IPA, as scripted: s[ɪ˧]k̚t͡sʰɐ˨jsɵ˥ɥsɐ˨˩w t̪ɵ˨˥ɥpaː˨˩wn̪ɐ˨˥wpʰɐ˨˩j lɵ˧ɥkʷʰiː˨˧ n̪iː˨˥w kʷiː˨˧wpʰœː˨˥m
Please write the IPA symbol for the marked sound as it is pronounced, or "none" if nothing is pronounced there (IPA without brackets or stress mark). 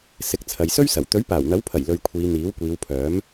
ɪ˨˥